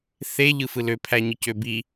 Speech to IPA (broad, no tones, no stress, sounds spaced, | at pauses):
θ e ʎ ɯ f ɯ l ø pʰ æ ɲ ɯ c ø b i